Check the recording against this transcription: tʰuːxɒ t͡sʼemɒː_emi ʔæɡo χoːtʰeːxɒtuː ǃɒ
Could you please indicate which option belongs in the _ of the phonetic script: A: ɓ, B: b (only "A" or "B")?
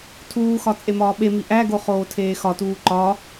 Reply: A